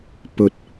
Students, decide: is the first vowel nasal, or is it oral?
oral